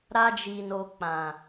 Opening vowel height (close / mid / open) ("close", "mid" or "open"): open